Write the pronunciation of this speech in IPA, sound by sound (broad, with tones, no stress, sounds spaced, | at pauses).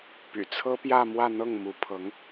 p y̰˨˩ t͡sʰ ɤ˥ p j ä˥˧ m w ä˥˧ n̪ ɤ˥˩ ŋ m u˧˥ pʰ ɤ˧˥ ŋ